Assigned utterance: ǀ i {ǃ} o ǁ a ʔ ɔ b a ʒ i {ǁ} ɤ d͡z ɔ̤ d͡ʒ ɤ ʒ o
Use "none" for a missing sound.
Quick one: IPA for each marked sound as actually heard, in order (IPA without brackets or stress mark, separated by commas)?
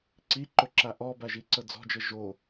ǃ, ǀ